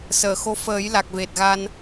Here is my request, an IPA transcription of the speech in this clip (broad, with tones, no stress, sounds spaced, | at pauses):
s əː˨˩˨ x o˧˥ f əː˨˩˦ j l a˨˩ k̚ v e˨˩ t̚ ɣ a˧ n